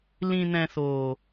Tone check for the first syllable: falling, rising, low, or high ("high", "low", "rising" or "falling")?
low